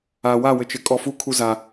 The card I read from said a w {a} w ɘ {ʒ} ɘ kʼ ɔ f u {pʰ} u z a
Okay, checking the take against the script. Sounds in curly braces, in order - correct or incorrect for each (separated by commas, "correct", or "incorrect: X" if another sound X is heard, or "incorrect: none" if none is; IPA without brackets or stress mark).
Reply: correct, incorrect: t͡ʃ, incorrect: kʰ